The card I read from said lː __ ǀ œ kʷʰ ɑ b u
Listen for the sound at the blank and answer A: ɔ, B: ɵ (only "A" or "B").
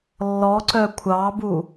A